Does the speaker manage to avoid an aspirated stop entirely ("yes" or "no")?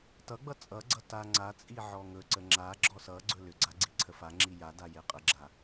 no